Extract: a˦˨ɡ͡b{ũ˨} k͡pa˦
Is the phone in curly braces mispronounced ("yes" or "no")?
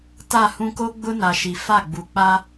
yes